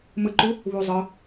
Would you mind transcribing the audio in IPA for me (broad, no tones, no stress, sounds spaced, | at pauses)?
m ɯ ǃ u | β u zˤ ɯ